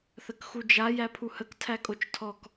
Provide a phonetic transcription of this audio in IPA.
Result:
θ ə k x u d͡ʒ a j æ pʰ u h ə k tʰ æ kʼ o t͡ʃ tʰ ɔ k

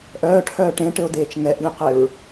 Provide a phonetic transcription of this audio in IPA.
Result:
ʔ œː ʈʰ œː ʈ ẽ ʈ ɘ o̯ d eː t͡ʃ ŋ ɛ ʔ lʲ ẽ q e ɹ

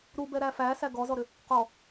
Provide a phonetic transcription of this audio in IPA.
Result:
ɾ u b ɛ ɾ æ f æ s æ ɡ ɔ z ɔ ɾ ʏ | q ɔ

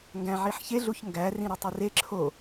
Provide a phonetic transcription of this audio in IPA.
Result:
ŋ ɡ æ̃ ʕ i ħ ç e ɮ u ç ŋ ɡ æ r ĩ ɾ ɒ tˤ i r e ǁʰ o

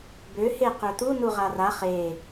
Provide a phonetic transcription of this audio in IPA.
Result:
b ø h e q ø t̪ u n u ʁ a r a χ e

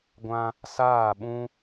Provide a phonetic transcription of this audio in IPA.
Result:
ɡʷ ã˦ | s aː˦˨ ɓ ũ˦

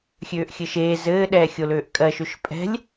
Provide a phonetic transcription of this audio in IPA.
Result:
xʲ øː ʔ xʲ ɘ ʃ eː z ɘː ɗ ɛː xʲ o l øː ʔ kʼ ɜ ʃ ø ʃ pʼ ɛ̤ lʲ

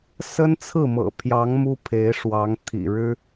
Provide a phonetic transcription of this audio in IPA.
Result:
s ə˥ n t͡sʰ ɹ̩˥˩ m ɤ̰˨˩ pʰ j ɑ˧˥ ŋ m u˥ pʰ e˧˥ ɪ̯ ʂ w ɑ˧˥ ŋ t̪ʰ ḭ˨˩ ɻ ɻ̩˥

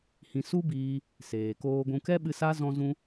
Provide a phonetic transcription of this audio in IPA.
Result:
h ĩ˧ s u˦ b iː˧ | s eː˨ k oː˧ ɡʷ ũ˧ k ɛ˦ ɓ ɨ˧ s a˦ z ɔ̃˧ z ũ˧

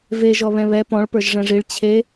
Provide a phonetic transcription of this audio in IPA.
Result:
v e ʒ ɔ β ɛ̃ β ɛ p ɔ̃ ɭ p ə˞ ʒ ʐ ɛ̃ ʐ i ɭ t͡ɕʰ e

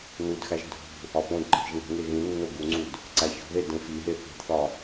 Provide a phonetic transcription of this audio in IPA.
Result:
n u d x æ ʒ dʱ ṳ | ɒ p õ d ǃʰ i̤ ʒ ŋ e̤ ŋ e ɣ ĩ nː o ɡ u ŋ͡ǀ u d | ǀ æ ç o̤ ð e d ẽ f i ɦ e θ i̤ d θ ɒ

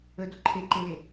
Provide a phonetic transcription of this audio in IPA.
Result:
ə d o ǃʰ e ǃ e l e

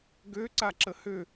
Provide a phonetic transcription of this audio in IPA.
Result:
ɡ ø ǀ a ǁ ə h ø

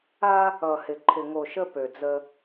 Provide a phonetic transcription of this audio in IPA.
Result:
a˦ | ʌ˨ h ɪ˨ ǃʰ ɪ˨ ŋ o˨ ʃ ə˦ p ø˨ d͡z ə˦

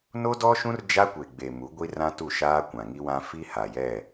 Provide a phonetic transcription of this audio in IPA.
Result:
n o˦ d ɔ˦ ʃ ũ˦ r d͡ʒ a˦ kʷ e˨ ɡ͡b e˨ m u˨˦ ɡʷ i˦ r ã˦ t u˦˨ ʃ aː˦ kʷ ã˨ ŋ i˦ w ã˦ f i˦ h a˨ j ɛ˦˨

